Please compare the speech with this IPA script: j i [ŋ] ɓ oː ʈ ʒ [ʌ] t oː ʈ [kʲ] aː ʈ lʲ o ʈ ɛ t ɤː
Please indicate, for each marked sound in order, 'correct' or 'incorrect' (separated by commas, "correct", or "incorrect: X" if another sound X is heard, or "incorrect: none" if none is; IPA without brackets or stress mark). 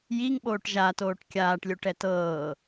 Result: correct, incorrect: a, correct